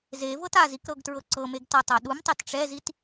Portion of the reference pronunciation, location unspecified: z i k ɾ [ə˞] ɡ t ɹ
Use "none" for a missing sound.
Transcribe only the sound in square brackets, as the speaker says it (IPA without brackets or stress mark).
ɤ